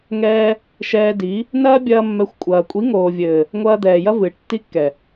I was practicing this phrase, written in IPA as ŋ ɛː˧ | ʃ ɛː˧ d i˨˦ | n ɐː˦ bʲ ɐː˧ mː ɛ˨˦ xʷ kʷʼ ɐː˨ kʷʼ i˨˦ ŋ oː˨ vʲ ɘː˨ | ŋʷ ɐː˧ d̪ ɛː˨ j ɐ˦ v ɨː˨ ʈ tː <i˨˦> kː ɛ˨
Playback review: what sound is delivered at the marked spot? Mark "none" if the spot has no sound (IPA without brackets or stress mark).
i˦